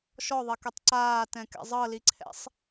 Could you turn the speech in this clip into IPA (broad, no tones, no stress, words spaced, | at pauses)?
ʃɔðˤekɛtˤ ǀaːtɛ̃kɛ̰ zˤɤliǀʰɛ̰sˤ